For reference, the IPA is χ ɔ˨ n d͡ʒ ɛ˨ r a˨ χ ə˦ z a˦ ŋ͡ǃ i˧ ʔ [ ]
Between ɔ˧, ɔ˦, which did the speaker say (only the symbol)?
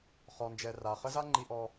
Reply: ɔ˧